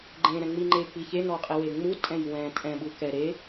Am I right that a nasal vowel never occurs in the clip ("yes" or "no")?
no